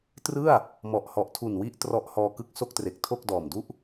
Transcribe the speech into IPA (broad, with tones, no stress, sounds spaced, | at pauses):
t r ɯ˥˩ a̯ | m ɔ˨˩ ʔ h ɔ˨˩ ʔ tʰ u˨˩ n w i˦˥ ʔ t r ɔ˦˥ ʔ h ɔː˧ k ɯ˦˥ k̚ s o˥˩ k̚ t r e˨˩ k̚ tʰ o˥˩ k̚ d ɔː˨˩ m d u˥˩ ʔ